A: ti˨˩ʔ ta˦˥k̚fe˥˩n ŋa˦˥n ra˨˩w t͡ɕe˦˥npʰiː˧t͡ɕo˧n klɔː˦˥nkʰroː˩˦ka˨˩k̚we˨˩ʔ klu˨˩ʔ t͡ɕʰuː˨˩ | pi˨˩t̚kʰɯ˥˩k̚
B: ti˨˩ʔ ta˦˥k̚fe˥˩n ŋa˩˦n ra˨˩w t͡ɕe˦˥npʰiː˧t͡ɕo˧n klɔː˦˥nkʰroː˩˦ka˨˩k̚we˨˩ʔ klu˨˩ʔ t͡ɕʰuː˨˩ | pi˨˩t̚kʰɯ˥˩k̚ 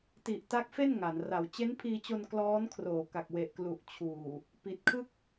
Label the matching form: B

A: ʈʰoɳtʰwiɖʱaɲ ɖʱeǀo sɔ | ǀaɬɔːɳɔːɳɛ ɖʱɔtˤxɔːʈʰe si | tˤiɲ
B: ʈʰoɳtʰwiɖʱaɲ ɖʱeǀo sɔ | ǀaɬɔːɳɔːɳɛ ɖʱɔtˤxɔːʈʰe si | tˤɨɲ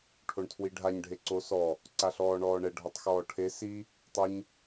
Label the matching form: B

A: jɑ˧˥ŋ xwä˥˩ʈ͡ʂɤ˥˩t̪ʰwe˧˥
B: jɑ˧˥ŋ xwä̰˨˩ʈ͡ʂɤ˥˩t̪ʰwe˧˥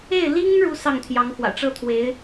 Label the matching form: B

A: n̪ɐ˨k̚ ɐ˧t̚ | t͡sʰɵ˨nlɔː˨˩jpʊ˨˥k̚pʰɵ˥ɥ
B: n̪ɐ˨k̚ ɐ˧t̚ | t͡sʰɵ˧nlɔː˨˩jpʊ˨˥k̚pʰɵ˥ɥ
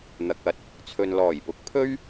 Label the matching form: A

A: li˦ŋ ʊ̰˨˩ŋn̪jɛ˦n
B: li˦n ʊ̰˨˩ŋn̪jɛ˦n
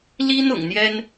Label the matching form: B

